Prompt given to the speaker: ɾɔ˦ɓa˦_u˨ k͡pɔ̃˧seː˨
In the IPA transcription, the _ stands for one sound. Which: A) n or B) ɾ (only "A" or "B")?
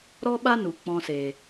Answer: A